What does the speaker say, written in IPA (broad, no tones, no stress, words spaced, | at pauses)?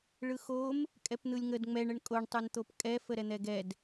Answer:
ɭɯxom | kʼɛpn̪ɯlʲŋəd ŋ͡mɛɳ əɳkʼoɳ tˤɯnt̪opkʼɛ fəɾɛn̪ɛɡɛd